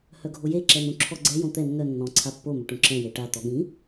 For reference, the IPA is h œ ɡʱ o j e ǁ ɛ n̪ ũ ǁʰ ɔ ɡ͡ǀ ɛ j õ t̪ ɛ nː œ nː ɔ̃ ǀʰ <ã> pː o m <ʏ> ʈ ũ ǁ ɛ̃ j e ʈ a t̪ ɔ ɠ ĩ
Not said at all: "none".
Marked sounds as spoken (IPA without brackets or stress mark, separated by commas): a, ʏ